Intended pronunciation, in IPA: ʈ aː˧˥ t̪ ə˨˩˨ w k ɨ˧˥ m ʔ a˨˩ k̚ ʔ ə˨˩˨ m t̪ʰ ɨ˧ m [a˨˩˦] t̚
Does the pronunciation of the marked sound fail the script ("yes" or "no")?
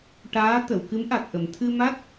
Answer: yes